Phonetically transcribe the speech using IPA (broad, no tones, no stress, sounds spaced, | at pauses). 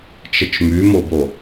t͡ʃ ə t͡ʃ m y m o b o